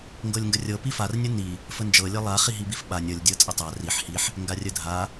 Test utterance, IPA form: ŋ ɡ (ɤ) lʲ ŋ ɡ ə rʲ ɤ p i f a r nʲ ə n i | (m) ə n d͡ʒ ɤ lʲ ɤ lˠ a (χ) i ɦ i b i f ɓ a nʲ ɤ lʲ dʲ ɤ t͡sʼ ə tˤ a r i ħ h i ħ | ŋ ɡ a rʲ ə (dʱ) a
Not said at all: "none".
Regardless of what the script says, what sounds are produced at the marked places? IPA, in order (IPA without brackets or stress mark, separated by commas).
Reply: ɤ, f, χ, dʱ